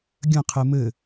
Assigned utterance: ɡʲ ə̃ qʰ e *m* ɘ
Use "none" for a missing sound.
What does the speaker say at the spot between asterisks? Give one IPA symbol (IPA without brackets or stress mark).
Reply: m